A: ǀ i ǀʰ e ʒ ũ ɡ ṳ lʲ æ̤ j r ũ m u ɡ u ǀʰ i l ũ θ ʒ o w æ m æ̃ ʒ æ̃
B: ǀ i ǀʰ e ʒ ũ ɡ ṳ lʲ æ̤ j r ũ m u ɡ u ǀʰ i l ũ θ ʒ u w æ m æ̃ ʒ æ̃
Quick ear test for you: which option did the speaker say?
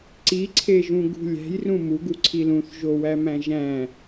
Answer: A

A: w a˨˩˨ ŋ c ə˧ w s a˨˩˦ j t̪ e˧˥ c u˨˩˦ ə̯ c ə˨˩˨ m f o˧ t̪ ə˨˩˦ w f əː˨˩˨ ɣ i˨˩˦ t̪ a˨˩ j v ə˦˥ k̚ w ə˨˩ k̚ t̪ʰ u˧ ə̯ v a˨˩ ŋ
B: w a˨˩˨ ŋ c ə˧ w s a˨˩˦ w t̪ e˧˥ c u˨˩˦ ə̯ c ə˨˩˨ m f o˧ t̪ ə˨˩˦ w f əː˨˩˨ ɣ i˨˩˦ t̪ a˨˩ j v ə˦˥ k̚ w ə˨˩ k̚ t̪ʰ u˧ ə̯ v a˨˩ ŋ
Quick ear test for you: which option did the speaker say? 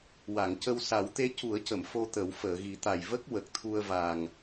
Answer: B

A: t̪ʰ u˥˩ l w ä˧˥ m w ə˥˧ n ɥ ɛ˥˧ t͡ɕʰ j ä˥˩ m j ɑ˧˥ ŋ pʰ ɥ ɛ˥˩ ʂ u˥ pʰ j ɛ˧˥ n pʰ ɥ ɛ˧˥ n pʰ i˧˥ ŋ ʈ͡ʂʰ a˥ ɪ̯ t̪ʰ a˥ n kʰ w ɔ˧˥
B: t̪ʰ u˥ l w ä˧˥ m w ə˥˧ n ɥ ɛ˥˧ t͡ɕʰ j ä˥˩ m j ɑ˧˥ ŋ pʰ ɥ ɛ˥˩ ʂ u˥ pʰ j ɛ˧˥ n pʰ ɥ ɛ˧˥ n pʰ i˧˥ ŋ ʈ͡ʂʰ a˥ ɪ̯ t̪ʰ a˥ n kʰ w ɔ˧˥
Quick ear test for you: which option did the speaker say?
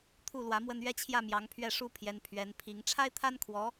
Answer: A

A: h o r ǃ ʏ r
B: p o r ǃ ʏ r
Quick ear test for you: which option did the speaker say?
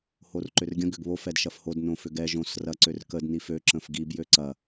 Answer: A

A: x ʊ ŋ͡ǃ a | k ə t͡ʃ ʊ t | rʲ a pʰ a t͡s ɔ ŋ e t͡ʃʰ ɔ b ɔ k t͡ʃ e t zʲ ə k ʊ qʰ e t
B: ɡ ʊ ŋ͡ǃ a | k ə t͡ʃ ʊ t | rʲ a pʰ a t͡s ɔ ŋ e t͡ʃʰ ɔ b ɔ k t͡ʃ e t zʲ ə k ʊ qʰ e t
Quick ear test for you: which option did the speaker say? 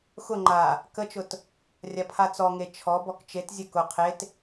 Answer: A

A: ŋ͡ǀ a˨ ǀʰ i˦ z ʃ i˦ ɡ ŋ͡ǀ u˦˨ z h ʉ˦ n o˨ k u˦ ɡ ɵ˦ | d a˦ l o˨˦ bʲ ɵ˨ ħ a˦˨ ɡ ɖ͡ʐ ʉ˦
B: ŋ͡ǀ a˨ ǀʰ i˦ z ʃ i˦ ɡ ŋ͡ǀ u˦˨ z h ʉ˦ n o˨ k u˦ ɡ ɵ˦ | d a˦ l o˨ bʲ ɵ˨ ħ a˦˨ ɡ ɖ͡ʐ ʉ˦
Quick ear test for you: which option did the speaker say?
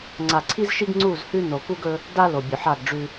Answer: B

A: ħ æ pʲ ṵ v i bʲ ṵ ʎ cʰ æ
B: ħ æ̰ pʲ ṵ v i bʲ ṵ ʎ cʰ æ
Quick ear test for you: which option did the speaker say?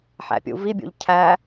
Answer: B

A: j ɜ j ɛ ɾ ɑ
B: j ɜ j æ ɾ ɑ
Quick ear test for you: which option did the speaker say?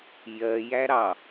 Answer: B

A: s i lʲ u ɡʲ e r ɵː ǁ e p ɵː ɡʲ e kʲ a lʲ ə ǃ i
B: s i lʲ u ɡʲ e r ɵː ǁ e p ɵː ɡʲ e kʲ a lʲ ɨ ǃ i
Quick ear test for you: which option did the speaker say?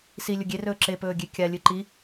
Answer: B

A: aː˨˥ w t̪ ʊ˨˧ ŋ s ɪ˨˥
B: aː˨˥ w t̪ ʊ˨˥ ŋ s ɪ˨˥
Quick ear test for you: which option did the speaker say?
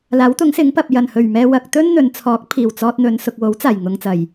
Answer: B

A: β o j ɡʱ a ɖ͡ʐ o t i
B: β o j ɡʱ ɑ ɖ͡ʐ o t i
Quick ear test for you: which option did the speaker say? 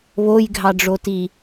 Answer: B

